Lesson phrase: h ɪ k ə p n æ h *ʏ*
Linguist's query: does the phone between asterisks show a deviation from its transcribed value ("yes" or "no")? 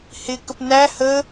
yes